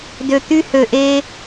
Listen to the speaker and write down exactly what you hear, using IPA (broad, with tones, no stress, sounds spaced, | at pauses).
d ø˨ t̪ y˧ h ø˨ ʔ e˧